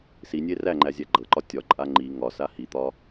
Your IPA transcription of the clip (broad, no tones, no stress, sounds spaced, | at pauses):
s i nʲ e r æ ŋ͡ǃ æ zʲ æ ɡ͡ǃ ɤ ǃ ɒ tʲ ɒ ǃʼ a ŋ͡ǃ i ŋ ɒ s a h i t̪ ɒ